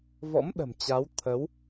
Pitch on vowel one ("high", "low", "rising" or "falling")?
rising